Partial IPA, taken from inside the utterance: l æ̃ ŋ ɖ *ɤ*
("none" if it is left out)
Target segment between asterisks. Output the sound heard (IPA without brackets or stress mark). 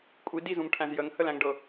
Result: ɤ